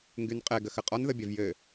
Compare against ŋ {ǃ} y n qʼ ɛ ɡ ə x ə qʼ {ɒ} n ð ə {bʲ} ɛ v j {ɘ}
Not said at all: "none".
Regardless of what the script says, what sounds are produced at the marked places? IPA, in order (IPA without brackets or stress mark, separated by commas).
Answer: ɡ, ɒ, bʲ, ɘ